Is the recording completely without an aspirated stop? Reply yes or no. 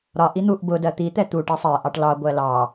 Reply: yes